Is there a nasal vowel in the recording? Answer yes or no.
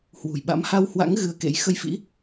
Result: no